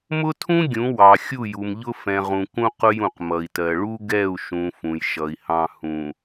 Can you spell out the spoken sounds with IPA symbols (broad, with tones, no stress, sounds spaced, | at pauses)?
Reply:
m ʊ˦ tʰ ũ˦ ɡʲ ũ˨˦ w ɑ˨ xʲ u˦˨ j u˨ m ʎ ʊ˦ f ɛ̃˨ ʁ ũ˨ k ũ˦ q ʊ˦ j ũ˨ q m ʌ˨ i̯ t ɜ˨ ɭ u˦ ɡ ɛ˦˨ u̯ ʃ ũ˨ f ũ˨ j ʃ ʌ˨ i̯ h ɑ̃˦ h ũ˨